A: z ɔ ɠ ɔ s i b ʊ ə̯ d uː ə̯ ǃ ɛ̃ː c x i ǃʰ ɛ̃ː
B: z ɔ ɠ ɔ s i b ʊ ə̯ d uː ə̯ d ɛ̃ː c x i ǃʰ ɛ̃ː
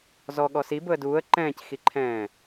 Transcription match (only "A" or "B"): A